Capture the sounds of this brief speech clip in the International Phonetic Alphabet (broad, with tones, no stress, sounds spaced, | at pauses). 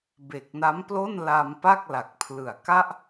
b e˨˩ k̚ n a˦˥ m p l o˥˩ n l a˧ m p a˥˩ k̚ l a˨˩ k̚ pʰ l ɯ˨˩ a̯ k a˥˩ ʔ